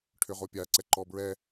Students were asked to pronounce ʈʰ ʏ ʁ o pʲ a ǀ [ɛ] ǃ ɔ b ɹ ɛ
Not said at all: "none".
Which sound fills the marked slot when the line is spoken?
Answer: ɛ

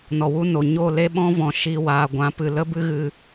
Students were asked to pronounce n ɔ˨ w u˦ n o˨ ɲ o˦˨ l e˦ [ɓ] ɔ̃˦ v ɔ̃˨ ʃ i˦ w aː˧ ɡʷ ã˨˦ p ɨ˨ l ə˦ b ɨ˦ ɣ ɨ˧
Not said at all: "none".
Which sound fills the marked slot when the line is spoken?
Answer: ɓ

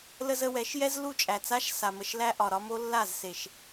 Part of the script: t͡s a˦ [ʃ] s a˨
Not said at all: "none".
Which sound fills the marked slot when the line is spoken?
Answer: ʃ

